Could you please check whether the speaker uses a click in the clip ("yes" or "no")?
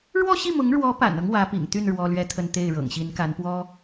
no